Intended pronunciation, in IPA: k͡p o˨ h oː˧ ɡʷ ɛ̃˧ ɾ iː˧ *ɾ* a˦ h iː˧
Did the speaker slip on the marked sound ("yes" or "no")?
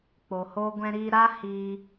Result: no